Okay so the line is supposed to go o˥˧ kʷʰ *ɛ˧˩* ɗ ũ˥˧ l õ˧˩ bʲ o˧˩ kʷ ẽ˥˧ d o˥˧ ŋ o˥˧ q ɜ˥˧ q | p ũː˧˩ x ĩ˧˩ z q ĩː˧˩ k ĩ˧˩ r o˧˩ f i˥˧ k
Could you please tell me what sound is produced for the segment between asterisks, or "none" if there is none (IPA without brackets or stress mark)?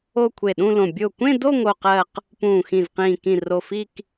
e˧˩